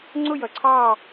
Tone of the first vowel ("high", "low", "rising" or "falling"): falling